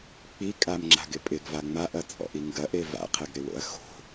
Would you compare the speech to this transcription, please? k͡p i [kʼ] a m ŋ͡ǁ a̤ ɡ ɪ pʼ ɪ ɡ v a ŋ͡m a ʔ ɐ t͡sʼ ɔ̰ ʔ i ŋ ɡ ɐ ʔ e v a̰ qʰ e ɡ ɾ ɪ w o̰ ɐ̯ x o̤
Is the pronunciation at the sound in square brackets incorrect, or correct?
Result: correct